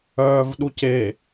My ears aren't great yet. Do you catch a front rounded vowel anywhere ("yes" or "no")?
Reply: yes